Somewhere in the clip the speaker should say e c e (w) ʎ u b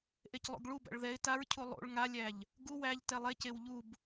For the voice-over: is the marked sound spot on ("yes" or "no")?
yes